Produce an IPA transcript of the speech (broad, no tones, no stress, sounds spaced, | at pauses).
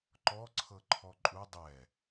ǃ ɔ ǀʰ ɤ ǃʰ ɔ ǃʼ u dˤ ɛ